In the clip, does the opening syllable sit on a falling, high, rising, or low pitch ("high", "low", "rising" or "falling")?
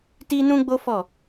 high